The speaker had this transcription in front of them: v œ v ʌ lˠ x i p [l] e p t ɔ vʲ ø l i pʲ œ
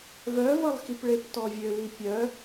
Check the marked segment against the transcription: incorrect: ɭ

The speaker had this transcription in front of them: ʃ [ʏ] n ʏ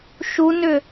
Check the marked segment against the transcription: incorrect: u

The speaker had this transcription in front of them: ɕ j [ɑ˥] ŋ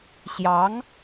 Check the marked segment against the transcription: incorrect: ɑ˧˥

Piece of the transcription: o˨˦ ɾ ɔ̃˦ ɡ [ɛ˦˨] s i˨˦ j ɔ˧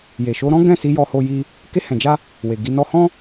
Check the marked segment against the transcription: incorrect: ɛ̃˦˨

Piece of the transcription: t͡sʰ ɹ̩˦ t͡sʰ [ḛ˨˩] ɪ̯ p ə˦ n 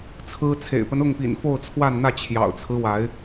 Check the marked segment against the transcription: correct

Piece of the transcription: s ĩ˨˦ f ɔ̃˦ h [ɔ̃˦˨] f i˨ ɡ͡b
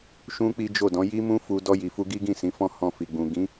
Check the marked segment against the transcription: incorrect: ɔ̃˧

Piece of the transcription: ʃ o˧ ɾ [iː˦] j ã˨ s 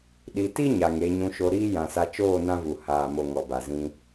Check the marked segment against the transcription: correct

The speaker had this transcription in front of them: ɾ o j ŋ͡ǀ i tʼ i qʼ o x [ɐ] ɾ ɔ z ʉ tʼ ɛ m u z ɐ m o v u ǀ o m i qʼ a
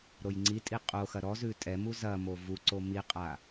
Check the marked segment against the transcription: correct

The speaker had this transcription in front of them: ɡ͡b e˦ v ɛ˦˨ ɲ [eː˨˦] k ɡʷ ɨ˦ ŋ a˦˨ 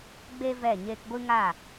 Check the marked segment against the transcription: incorrect: eː˧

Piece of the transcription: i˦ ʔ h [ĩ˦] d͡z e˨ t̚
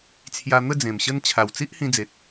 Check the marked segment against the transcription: incorrect: ĩ˧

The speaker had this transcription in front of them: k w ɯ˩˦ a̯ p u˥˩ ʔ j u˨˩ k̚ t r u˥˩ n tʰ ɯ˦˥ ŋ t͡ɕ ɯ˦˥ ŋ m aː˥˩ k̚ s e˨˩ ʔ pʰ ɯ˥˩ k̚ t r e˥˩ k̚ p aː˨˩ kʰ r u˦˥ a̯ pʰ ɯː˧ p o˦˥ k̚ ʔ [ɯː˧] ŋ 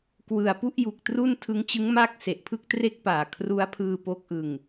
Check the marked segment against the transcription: incorrect: ɯ˧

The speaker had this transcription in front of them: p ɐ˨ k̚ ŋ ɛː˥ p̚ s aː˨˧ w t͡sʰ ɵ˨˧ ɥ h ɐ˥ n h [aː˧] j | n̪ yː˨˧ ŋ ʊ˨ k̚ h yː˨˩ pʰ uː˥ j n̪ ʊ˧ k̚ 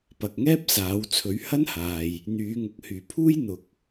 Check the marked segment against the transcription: incorrect: aː˨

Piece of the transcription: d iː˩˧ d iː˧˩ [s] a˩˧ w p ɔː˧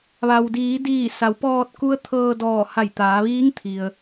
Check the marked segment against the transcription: correct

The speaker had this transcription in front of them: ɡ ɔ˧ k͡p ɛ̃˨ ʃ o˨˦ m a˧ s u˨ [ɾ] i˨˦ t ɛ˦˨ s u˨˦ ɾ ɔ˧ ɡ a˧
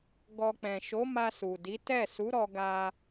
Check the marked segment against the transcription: incorrect: d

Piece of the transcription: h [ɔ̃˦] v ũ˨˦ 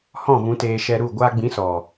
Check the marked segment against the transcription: incorrect: ɔ̃˦˨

